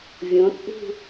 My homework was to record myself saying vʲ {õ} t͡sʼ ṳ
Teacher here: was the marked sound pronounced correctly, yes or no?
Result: yes